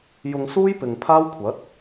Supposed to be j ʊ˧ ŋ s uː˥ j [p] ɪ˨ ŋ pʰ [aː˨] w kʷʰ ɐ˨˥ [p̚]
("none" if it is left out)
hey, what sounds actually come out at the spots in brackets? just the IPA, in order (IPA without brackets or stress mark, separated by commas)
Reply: p, aː˥, t̚